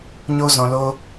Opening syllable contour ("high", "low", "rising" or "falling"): high